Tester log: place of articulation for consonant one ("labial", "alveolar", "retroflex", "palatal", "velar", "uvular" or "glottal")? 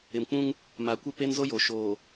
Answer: labial